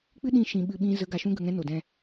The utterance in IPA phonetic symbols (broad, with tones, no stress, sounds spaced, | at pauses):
k͡p ɨ˦ ɗ ĩ˦˨ ʃ ĩ˧ ɓ ɨ˧ ɓ ĩ˦ z ə˨˦ ɡ a˨ ʃ ũ˦ ɡ ə˧ ŋ ɛ̃˦ n o˨ d ɛ̃˧